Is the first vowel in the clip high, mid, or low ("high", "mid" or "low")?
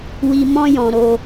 high